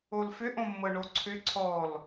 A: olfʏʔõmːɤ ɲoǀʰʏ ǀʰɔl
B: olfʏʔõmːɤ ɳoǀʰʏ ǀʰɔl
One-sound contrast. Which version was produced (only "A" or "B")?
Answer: B